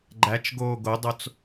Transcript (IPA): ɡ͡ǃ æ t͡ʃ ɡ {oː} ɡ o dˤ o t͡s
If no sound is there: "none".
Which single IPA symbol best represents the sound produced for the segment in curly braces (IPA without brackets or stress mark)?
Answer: oː